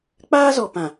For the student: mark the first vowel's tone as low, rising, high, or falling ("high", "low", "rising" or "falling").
high